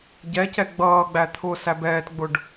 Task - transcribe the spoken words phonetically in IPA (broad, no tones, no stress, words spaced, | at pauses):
ɟɛcɛ ɡ͡bʌːɡ͡bæ t̪ʰʊ sæbɛːtɡ͡bʊɖ